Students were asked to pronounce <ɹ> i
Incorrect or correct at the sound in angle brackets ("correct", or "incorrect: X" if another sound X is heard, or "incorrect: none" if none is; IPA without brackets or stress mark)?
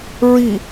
correct